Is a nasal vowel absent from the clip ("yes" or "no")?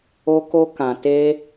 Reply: no